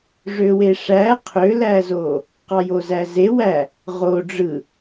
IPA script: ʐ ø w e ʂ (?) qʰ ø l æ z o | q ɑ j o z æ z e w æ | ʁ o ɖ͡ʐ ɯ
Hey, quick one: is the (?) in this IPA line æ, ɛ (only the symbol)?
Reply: æ